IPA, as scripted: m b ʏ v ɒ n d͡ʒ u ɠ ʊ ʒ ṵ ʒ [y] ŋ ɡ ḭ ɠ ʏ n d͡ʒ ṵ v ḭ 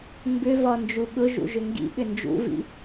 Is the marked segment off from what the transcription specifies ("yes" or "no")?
yes